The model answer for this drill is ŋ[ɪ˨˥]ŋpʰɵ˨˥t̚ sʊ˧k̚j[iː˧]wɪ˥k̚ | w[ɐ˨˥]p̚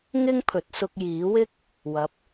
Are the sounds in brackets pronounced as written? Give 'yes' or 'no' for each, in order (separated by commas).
no, no, yes